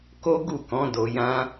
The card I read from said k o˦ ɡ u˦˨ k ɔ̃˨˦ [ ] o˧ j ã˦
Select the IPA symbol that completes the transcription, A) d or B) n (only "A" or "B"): A